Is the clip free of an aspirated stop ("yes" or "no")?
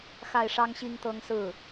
yes